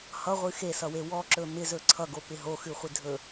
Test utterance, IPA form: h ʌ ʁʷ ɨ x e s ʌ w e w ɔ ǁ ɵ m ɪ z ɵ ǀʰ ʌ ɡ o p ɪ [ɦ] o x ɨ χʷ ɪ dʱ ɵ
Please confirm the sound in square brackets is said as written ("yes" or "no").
yes